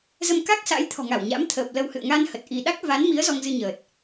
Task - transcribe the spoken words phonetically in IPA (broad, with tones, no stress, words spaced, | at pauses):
zə˧m ka˦˥k̚sa̰˧˥j t̪ʰɔ̤˨˩ŋa˧˩w ɲa̰˧˥m t̪ʰəː˨˩p̚lə˧whɨ̰˧˨ə̯ ŋa˧n hə˨˩t̚ʔi˧ ɗa˦˥k̚va˨˦nmi˨˦ə̯ zɔ˧ŋzɨ˧ɲəː˨˩t̚